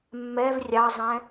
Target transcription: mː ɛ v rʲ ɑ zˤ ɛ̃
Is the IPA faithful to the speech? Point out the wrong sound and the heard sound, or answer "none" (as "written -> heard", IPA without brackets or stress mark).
none